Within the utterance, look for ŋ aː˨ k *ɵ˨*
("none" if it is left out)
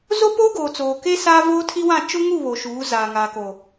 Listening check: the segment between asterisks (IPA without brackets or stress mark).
o˨